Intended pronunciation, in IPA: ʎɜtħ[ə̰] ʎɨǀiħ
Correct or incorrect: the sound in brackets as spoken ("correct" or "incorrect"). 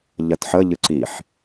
incorrect